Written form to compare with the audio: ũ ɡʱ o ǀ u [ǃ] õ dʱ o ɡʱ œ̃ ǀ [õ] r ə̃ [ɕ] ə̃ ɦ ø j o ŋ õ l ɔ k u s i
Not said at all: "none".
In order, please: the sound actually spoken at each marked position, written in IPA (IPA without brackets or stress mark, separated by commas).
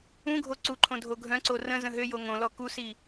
ǃʰ, o, z